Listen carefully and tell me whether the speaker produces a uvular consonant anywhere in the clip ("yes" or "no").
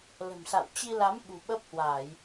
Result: no